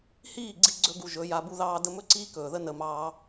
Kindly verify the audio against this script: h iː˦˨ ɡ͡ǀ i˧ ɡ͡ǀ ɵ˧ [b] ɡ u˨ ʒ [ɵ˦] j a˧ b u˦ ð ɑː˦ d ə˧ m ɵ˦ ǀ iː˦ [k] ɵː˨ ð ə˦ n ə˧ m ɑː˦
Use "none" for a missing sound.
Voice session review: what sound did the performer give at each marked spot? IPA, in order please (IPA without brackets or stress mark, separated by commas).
none, ɵ˨˦, k